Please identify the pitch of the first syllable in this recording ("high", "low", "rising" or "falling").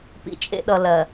high